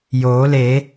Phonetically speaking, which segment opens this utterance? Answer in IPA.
j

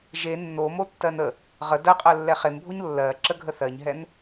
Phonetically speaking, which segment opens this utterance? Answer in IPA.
ʒ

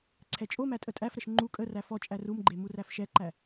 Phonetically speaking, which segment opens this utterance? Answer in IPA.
ǀʰ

